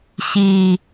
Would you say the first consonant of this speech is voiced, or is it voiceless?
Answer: voiceless